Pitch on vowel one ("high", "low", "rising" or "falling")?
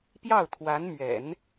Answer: falling